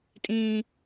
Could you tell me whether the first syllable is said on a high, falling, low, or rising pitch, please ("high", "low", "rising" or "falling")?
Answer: low